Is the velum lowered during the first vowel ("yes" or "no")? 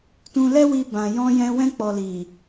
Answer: yes